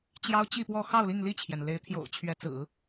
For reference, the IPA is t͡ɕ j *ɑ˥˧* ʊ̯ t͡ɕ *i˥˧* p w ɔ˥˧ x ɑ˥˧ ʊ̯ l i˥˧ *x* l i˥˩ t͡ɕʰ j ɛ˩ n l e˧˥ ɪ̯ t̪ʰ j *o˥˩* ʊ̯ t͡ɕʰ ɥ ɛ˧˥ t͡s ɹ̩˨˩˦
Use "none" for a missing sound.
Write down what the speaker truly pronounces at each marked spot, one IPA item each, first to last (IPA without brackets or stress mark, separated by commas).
ɑ˥, i˥˧, ŋ, o̰˨˩